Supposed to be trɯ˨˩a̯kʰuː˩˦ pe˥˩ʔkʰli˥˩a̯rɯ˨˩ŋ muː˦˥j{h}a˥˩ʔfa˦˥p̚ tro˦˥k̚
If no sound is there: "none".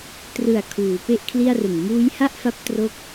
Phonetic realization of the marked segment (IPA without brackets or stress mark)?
h